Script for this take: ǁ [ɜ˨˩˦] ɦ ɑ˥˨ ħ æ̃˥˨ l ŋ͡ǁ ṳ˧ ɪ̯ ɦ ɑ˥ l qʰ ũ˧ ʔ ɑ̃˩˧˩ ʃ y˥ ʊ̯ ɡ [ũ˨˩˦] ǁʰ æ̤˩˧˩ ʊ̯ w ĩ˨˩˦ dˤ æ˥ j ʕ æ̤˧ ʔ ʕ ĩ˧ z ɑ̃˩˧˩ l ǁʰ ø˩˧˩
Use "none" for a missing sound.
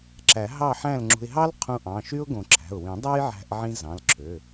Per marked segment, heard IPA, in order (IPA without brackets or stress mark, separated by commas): æ˨˩˦, õ˨˩˦